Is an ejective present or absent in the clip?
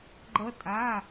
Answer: present